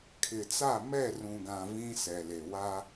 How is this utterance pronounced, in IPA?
kʰ ɪ˨ t͡s a˦˨ m ɛ˦˨ r ũ˨ ɡ ã˨ v ĩ˦ s ɛ˨ l e˨ w a˦

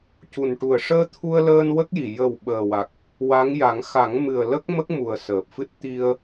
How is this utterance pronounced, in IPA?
c u˨˩ n ʈ u˨˩ ə̯ ʂ əː˧ t̪ʰ u˧ ə̯ l əː˧ n w ə˦˥ k̚ j i˨˩ j ə˨˩ w ɓ əː˨˩ w a˨˩ k̚ | w a˧˥ ŋ j a˨˩˦ ŋ x a˨˩˦ ŋ m ɨ˨˩ ə̯ l ə˦˥ k̚ m ə˦˥ k̚ m u˨˩ ə̯ s əː˨˩ p̚ f ɨ˦˥ t̚ t̪ i˧ ə̯

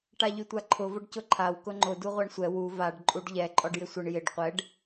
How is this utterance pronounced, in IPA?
ʈ a ʎ y tʷ a ǃʰ ʊ v ʊ ɖ c ʊ ǃʰ a w k ʊ ŋ͡ǃ ʊ d u ʁʷ a ɳ sʷ ɛ w u v a ɖ ǃʼ u ɖ ʎ ɛ ǃʼ ɔ ɖ j ɪ sʷ ɪ ɳ j ɪ ɖ qʷ ɛ ɖ

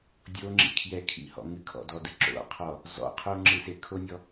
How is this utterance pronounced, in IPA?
dʲ o ŋ͡ǁ ḭ kʰ j ɛ kʰ ḭ h ɔ̰ ŋ ɨ kʰ ɔ̰ d ɔ d ɨ ǁ o̰ qʰ ɔ | z ɔ̰ qʰ o ŋ͡ǁ ɨ s e kʰ o nʲ ɔ

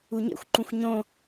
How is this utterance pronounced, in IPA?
u ɲ ḛ xʷ ǃ ũ xʷ ɲ õ

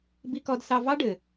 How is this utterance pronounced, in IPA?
b i˧ k ɔ˧ d s ɑ˧ v ɑ˥ ɖ ɘ˩

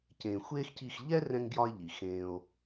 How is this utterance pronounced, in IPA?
c ẽː˨ xʷ eː˦ x c i˦˨ x ʎ ɛ˦ r ɛ̃˦ ŋ ɡ j ɒ˦ e̯ ʎ i˨ x ẽː˦ o̯

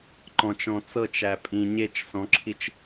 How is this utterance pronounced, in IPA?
ǃ ɔ̃ t͡ʃ ɔ̃ t͡s ɤ t͡ʃ æ pʼ ĩ ɲ e t͡ʃ s ɔ̃ ǁʰ i t͡ʃ

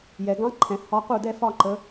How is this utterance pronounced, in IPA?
j ɛ˩ ɡ ɑ̃˧˥ ǃʰ ɛ̃˩ h ɒ˧˥ q u˥˩ d ɛ˥˧ f ɒ˥˧ ǃ ə˩˧

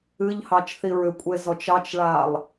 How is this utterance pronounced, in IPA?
ɨ ʎ h ɑ t͡ʃ θ i ɹ ʏ kʷʼ e z ɔ t͡ʃ ɑ t͡ʃ ɭ a lˠ

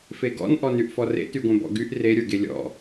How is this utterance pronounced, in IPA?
f e ɡ ɔ̰ n ʔ ɔ n y ʔ f ɔ r ḛ t y ɡʷ ẽ b ɔ̰ ɡ y ʔ r e ɾʲ ə˞ ɡ e lʲ ɔ̰

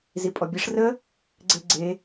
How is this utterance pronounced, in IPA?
z i pʼ ɔ bʲ e ʂ r ə | ɡ͡ǀ e ɡ͡ǀ e

